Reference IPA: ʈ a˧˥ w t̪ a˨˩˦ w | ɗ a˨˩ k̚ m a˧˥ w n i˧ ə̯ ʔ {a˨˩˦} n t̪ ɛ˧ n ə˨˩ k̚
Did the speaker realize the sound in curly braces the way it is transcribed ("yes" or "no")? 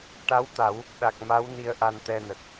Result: no